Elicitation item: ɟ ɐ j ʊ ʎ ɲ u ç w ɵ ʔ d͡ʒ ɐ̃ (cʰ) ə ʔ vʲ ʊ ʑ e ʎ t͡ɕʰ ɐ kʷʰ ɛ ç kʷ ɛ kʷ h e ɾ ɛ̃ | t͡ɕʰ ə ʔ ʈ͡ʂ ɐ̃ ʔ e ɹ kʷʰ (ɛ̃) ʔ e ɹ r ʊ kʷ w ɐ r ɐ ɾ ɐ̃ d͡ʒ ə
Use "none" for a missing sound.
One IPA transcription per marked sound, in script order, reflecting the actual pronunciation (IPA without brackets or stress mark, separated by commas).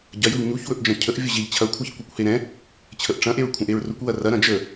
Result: cʰ, ɛ̃